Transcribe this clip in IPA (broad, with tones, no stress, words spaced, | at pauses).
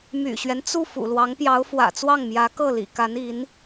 my̰˨˩ɕɥɛ˦n t͡su˥˩ fṵ˨˩lwɑ˧˥ŋpjɑ˧˥ʊ̯ fwä̰˨˩t͡swɑ˥˩ŋmjä˧˥ kɤ˥˩lḭ˨˩ka˧˥ni˧˥n